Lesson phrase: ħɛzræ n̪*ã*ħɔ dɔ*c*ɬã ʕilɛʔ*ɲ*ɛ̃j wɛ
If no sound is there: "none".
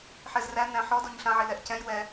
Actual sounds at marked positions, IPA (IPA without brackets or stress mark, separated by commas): æ̃, ɲ, c